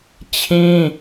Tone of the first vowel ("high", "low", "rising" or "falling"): high